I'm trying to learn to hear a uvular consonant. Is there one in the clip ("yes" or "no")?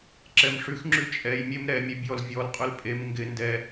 yes